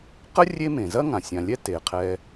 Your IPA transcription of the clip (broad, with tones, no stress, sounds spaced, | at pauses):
q ə˥ rʲ e˦ m ẽ˩ z ɐ˥ ŋ ã˩ sʲ ã˨ lʲ ɛ˥ t e˩ qʰ ɛ˨